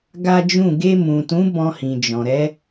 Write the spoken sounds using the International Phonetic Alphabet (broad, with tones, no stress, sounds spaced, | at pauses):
ɡ a˦ d͡ʒ ũ˦˨ ɡ e˧ m ũ˨ t ũ˨˦ b ɔ̃˧ h ĩ˨ d͡ʒ ɔ̃˨ ɾ ɛ˨˦